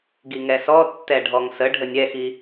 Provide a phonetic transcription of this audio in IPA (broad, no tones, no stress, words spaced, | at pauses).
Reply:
ɡiŋɛsɔtːɛ ɖʱɔŋsə ɖʱənʲɛxi